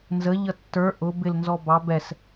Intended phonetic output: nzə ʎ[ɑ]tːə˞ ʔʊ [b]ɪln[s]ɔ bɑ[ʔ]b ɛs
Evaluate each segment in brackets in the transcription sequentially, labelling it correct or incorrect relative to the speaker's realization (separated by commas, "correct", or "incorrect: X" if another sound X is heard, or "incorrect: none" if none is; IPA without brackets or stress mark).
incorrect: ʌ, correct, incorrect: z, incorrect: none